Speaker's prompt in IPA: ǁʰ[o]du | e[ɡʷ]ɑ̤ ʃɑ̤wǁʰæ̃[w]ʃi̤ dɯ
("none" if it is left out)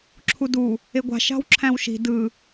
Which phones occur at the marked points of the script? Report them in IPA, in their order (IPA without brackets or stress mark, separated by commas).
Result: u, ɡʷ, w